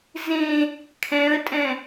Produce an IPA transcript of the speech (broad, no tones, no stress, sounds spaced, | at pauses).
z ẽ | kʰ ɛ̃ ə̯ tʼ ɛ̃